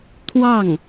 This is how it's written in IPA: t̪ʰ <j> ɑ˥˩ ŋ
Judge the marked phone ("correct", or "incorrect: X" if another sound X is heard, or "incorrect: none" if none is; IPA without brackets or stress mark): incorrect: w